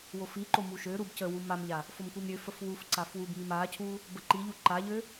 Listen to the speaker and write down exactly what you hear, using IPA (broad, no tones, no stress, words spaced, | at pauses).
wofiǃo muʃøɾub cəwu mamʎa | fomkʷimɾʲøfəf wuf ǀafwubmim acʰu | bəǃiʎu ǃaʎø